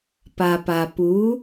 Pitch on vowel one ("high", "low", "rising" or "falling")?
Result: low